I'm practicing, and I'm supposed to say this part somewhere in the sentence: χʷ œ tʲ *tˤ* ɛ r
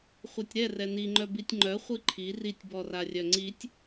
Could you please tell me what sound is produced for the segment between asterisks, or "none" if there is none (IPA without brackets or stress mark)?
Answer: ɾ